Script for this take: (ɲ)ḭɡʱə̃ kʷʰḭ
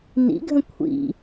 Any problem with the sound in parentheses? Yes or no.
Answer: yes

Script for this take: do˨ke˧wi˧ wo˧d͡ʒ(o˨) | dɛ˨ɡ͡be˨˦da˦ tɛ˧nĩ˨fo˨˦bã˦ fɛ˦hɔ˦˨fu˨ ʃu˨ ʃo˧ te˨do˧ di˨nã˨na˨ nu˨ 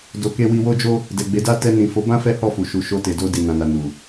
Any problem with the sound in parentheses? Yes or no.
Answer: yes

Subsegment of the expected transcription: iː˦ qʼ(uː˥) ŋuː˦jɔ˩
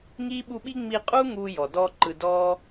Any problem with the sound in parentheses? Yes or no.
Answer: no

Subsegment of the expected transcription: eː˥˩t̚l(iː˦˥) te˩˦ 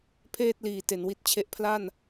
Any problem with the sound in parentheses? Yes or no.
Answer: yes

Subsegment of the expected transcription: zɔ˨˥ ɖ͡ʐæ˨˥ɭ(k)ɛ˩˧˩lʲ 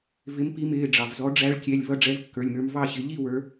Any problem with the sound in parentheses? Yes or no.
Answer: yes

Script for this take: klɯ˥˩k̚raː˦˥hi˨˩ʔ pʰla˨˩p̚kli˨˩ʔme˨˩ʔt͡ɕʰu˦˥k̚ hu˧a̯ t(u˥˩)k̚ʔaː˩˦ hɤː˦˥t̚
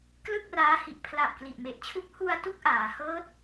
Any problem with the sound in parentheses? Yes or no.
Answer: no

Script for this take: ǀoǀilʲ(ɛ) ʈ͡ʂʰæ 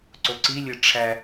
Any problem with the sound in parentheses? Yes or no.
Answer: yes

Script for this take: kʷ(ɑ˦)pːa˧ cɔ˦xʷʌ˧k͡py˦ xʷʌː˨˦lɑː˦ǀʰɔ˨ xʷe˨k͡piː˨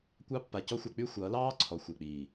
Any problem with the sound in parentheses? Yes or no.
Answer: no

